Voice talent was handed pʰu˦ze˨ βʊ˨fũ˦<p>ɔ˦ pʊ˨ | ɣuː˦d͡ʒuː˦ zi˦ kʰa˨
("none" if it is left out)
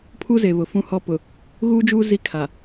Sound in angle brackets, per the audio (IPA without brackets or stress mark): h